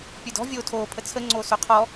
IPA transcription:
pʲ ə˞ d ɔ̤ vʲ oː tʰ oː pʰ ə t͡sʰ ə ŋ͡ǀ oː s o qʰ ɔ

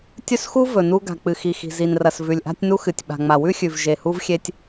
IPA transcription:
tʲ ɵ˦ s x u˦ v ɵ˨ n u˦ ɡ a̤˨ k͡p ɨ˨ x i˨ x i̤˨ z i˨ n r ɐ˨ s v ʉ˨ lʲ ʔ a̤˦ tʲ n u˦ x ɨ˨ tʲ ɓ a̤˨ ŋ͡m a˨ w ʉ˦ xʲ ʉ˨ v ʒ e˨ h u˦ v xʲ e˦ tʲ

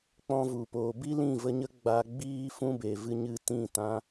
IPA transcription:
k͡p ɔ̃˧ v u˨ p oː˨ b i˦ l ĩ˦˨ v ə˧ ɲ ə˦ ɡ͡b a˧ ɡ͡b iː˦ f ũ˦ b e˨ v ɨ˧ ɲ ɨ˧ t ĩ˦˨ t ã˧

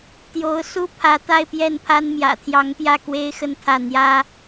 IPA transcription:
t̪ j o˧˥ ʊ̯ s u˥ pʰ ä˧˥ t̪ a˥˧ ɪ̯ p j ɛ˥˩ n pʰ a˥ n m j ä̰˨˩ t̪ʰ j ɑ˧˥ ŋ p j ä˥˩ k w e˥ ɪ̯ x ə˥˧ n t̪ʰ ä˥˩ n̪ j ä˥

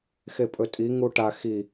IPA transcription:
x e pʼ ɵ tʼ i ŋ u ʈ a x i

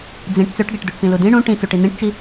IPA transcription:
d͡z ĩ ʈ t͡s ø ʈ ɡ ɛ ʈ d u ʈ p ĩ l u d ĩ ɳ ũ ʈ ĩ t͡s u ʈ i n̪ ĩ ʈ t͡ʃ i

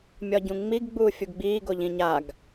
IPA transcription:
mʲ ɒ ɟ ũ ŋ͡m i ɡ ɡ͡b uː fʲ u ɡ ɡ͡b iː ɡ o ʎ ĩ ɲ a ɡ

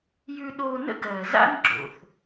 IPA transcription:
j ʉ˧ ɗ oː˧ n ə̰˥ ɡ ɜː˩ z a̰˥ n ɡ͡ǁ o̰˩ θ

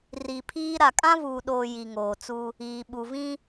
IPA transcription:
r i˨ pʰ iː˦ ɾ a˨ kʼ ã˦ v uː˨ ɗ oː˨ j i˨ ŋ oː˨ t͡s u˦ | iː˨ ɓ u˨ v ĩ˦

